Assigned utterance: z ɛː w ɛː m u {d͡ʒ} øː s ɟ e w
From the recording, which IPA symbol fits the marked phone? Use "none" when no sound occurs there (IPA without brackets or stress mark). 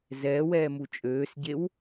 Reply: t͡ʃʼ